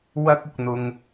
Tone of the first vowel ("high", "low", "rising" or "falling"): high